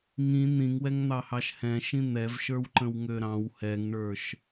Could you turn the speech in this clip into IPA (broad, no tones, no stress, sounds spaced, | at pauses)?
ŋ ĩ n̪ ĩ ŋ w ɛ ŋ n̪ ɑ h ɑ ʃ h ɛ̃ ʃ ĩ n̪ ɛ v ʃ ə˞ w ǃ ə̃ w ŋ ø ɾ ɑ̃ w h ɛ ŋ ɳ ə˞ ʃ